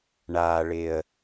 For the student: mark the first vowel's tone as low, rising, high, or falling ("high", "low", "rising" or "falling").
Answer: low